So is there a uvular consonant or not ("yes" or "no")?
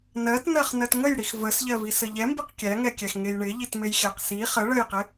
yes